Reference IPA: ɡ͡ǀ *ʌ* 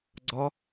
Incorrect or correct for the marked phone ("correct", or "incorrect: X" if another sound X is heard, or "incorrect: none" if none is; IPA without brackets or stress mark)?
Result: incorrect: ɒ